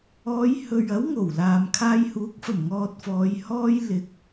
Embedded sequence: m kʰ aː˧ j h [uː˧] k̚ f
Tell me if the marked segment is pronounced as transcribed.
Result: no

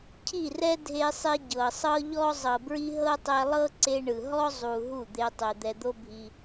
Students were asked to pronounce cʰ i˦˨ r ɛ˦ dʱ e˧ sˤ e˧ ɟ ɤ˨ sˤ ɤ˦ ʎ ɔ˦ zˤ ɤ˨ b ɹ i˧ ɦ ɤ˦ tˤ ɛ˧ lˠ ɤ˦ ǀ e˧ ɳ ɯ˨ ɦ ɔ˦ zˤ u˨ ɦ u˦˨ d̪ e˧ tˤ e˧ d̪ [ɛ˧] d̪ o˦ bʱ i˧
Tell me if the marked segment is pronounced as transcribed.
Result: yes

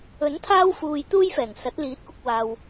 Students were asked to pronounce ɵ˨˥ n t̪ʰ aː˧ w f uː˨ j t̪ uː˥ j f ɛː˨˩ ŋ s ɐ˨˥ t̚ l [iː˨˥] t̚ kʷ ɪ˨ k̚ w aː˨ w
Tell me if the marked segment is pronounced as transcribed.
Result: yes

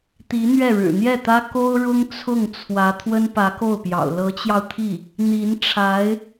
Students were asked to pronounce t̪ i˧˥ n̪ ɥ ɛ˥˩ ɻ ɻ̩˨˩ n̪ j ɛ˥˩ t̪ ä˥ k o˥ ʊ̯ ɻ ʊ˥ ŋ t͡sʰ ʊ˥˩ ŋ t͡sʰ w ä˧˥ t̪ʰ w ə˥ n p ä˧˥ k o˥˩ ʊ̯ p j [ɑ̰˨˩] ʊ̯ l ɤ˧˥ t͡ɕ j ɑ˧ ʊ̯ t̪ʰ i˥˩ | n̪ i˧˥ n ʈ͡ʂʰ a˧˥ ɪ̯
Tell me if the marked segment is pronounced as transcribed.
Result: yes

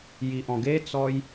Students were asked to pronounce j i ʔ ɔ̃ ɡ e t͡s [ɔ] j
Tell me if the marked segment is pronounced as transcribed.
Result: yes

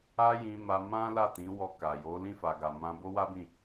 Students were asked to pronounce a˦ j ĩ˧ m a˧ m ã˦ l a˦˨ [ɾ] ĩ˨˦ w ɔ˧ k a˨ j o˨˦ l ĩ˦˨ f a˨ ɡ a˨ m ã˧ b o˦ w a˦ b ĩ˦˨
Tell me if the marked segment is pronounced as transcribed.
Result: no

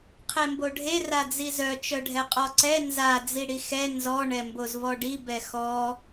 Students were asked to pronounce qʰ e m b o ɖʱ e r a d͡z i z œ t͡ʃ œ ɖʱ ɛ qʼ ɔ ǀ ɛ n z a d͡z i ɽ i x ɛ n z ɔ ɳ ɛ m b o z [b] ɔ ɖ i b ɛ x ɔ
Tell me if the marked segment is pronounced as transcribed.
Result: no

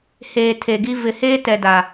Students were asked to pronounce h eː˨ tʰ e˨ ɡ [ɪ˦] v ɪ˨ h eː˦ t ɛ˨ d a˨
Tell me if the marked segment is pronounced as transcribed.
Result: no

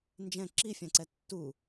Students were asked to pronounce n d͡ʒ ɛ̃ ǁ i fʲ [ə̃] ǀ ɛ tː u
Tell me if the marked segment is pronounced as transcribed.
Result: no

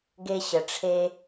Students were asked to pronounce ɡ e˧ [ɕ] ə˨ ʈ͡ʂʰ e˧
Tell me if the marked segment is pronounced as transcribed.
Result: yes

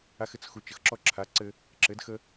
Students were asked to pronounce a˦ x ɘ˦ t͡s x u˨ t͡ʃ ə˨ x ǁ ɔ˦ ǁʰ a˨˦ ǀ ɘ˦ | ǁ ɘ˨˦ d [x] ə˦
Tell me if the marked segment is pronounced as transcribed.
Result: yes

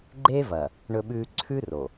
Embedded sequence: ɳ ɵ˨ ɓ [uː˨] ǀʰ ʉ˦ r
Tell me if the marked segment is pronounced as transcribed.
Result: no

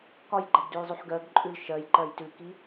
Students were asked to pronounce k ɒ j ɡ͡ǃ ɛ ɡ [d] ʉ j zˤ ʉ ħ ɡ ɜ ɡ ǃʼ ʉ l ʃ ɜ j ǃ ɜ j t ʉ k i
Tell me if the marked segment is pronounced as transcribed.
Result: yes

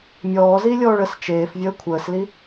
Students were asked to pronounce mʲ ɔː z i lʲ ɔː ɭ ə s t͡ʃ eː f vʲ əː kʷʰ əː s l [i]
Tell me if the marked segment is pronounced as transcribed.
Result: yes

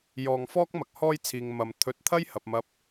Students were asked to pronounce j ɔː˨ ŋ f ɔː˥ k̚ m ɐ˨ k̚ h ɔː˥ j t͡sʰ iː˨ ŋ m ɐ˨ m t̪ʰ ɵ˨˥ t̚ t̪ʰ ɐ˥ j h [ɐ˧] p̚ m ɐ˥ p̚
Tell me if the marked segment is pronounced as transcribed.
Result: no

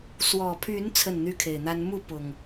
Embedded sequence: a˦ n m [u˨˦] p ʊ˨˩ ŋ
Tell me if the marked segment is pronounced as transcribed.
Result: no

